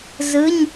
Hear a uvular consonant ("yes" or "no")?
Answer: no